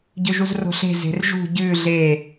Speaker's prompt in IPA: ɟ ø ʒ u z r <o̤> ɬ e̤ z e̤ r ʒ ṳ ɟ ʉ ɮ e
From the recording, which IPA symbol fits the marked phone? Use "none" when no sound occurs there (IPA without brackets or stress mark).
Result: o̤